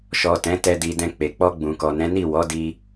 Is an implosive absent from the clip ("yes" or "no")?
yes